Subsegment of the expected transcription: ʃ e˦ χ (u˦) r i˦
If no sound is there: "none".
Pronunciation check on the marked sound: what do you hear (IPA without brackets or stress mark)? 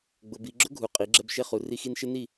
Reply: u˨